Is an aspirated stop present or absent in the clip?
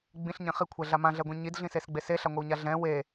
present